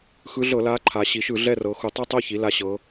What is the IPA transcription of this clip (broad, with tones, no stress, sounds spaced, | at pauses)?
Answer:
x ɯ˧˥ ɮ ɤ˧˩˧ l aː˧˥ ǃʰ a˩˧ ɕ i˩˧ ʃ ɯ˧˩˧ ɮ ɛ˦˨ r ɤ˩˧ x u˩˧ tˤ a˦˨ tˤ o˦˨ ç i˩˧ l a˩˧ ɕ ɤ˩˧